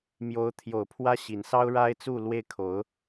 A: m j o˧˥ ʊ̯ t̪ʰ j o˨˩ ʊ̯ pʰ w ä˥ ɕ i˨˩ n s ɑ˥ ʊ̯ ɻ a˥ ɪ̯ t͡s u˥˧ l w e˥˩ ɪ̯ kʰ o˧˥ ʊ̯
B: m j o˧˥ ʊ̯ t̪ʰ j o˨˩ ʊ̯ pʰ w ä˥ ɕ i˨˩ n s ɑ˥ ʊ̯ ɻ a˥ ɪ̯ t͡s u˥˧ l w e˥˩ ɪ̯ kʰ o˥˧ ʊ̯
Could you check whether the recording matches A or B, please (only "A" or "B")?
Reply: A